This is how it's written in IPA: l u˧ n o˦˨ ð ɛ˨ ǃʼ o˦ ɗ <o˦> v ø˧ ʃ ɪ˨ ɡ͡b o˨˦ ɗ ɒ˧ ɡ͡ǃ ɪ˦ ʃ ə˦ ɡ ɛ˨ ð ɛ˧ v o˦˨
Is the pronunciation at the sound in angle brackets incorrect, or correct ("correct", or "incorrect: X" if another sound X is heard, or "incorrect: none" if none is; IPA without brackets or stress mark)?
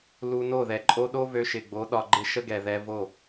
correct